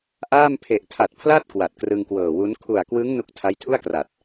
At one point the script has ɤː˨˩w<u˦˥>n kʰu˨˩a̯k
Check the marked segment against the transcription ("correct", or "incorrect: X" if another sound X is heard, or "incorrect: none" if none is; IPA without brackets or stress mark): correct